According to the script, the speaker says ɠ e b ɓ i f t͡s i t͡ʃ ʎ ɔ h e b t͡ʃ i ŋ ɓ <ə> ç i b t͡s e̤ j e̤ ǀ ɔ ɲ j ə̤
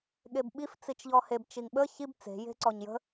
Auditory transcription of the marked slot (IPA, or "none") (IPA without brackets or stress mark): ə